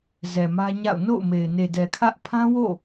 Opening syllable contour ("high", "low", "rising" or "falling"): low